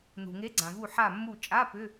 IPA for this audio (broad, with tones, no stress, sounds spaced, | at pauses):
n̪ ṳ˩ ŋ e˨˥ ɡ͡ǀ ã˩ v u˧˩ ħ a˧˩ mː u˧˩ t͡ʃʼ a˧˥˧ p ʏ˧˥˧